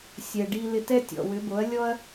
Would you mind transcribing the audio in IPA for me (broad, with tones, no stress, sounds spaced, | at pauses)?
sʲ ɛ˩ ɖ i˧ l ɪ˧ t ɛ˥ tʲ ɔ̰˩ w ʏ˩˥ b o˩˥ ɐ̯ lʲ ɔ˥ ɐ̯